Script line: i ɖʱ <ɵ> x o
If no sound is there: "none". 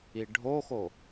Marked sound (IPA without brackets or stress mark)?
o